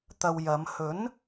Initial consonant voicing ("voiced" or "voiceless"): voiceless